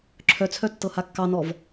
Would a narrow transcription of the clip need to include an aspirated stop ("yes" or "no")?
yes